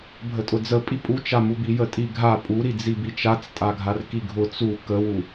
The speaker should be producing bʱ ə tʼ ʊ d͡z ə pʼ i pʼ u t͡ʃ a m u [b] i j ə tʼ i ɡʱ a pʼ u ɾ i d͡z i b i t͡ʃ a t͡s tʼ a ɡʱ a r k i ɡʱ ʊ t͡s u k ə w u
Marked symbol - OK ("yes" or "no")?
yes